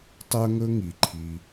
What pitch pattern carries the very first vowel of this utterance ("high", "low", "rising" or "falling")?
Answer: high